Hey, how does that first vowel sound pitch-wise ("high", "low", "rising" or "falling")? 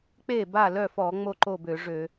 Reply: falling